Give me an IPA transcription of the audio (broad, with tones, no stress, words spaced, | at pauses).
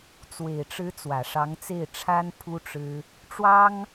t͡swe˨˩ɪ̯ʈ͡ʂɻ̩˧˥ t͡swä˨˩ʂɑ˧˥ŋt͡se˥˩ɪ̯ʈ͡ʂʰa˥n pʰu˥ʈ͡ʂɻ̩˥ | ʈ͡ʂwɑ˥ŋ